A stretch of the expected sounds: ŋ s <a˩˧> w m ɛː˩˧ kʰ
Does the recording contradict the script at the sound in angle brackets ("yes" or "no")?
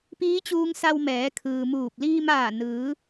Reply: yes